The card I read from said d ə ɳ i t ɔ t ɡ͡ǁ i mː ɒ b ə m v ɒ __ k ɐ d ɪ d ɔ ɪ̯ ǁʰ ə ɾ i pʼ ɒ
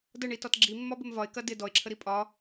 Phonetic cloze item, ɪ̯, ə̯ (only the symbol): ɪ̯